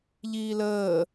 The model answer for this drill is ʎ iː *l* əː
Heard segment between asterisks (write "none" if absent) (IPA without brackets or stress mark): l